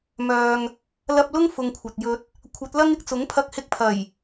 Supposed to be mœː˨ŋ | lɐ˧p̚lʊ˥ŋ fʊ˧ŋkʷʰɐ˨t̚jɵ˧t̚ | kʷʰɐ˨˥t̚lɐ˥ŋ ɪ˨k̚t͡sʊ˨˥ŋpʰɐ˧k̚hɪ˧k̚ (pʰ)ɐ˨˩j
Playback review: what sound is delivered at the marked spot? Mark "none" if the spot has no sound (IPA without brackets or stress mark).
pʰ